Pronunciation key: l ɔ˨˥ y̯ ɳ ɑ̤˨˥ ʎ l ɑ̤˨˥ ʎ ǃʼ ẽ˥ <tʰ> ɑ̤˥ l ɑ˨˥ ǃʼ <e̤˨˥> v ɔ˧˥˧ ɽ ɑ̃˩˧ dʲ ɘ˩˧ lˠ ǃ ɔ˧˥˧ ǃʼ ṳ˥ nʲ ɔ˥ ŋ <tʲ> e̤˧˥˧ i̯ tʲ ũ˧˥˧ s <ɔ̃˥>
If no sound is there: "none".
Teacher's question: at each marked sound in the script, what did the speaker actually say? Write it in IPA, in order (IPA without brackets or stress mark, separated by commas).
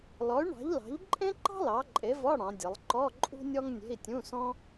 ǃ, e˨˥, nʲ, ɔ̃˥